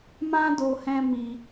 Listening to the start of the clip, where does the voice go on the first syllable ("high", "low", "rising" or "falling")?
high